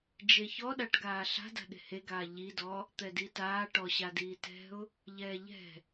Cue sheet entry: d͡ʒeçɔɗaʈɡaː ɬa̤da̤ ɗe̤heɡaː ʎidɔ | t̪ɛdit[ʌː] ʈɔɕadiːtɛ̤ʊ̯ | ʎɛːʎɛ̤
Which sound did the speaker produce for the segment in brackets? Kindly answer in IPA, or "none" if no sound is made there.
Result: aː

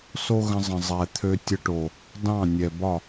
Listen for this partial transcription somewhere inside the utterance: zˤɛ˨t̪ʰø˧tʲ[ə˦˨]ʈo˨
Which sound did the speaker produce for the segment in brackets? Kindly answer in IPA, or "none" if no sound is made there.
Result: ə˧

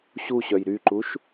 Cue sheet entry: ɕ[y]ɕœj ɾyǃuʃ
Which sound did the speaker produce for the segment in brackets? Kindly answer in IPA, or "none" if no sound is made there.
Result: u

